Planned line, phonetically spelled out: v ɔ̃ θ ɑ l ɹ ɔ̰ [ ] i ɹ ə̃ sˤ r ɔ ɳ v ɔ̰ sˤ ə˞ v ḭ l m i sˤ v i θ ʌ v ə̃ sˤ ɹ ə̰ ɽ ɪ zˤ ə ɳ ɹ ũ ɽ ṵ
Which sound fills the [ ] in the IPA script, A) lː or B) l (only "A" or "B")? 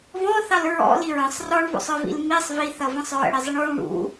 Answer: B